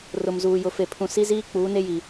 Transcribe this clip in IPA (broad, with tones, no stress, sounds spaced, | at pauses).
r ʊ˨ m z uː˨ j ʊ˨ f e˨ pʰ ũ˨ s i˦ z iː˦ k͡p uː˨˦ n e˦ j i˨